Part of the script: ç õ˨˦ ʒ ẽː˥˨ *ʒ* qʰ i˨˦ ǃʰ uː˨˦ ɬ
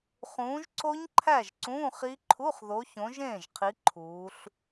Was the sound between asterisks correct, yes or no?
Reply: yes